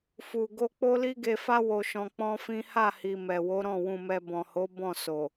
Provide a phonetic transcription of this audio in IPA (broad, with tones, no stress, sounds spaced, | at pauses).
f u˧ ɡ o˦ k͡p o˦ l i˦ ɡ e˧ f a˦ w o˧ ʃ ɔ̃˧ k͡p ɔ̃˦ f ĩ˦ h a˦˨ h i˨ m ɛ˨ w o˨˦ ɾ ɔ̃˦˨ w ũ˧ m ɛ˧ b ɔ̃˨ h o˨˦ b ɔ̃˦˨ s o˨